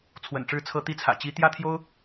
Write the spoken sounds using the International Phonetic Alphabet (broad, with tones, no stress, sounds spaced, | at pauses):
t͡sʰ w ə̰˨˩ n ʈ͡ʂ ɻ̩˥˩ t͡sʰ ɤ˥ t̪ i˧˥ t͡sʰ ä̰˨˩ t͡ɕ i˧˥ t̪ j ä˥ t̪ʰ j o˥ ʊ̯